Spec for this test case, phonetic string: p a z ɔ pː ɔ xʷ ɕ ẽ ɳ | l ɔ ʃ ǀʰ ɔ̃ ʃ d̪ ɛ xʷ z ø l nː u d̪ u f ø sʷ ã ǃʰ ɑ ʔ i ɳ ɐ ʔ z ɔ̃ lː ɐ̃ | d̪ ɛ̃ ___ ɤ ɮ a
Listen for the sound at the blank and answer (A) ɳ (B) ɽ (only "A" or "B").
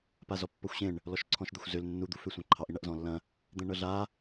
A